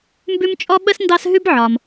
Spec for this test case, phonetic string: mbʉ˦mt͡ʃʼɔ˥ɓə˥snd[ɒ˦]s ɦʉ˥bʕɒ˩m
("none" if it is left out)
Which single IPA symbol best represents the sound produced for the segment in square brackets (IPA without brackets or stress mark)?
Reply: ɑ˦